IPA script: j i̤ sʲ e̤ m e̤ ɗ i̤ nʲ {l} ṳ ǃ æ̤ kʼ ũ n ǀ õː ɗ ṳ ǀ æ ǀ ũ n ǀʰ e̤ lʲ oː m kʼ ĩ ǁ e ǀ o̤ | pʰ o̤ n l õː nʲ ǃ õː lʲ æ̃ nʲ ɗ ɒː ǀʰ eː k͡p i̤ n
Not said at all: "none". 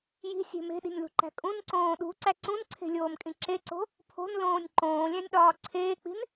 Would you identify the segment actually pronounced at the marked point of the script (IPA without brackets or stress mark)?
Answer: l